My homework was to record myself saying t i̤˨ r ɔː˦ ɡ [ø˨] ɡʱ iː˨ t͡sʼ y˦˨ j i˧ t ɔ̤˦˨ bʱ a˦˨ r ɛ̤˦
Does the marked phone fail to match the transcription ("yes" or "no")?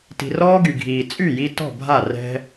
yes